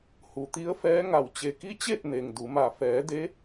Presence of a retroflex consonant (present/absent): absent